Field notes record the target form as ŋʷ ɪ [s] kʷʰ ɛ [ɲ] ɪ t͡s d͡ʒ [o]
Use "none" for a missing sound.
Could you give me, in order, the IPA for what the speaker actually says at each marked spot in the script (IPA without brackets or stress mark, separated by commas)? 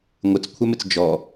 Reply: t͡s, m, ɔ